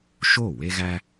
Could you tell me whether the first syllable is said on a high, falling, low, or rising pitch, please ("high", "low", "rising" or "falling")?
falling